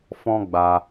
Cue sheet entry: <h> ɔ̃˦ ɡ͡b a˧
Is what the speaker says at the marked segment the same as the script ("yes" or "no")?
no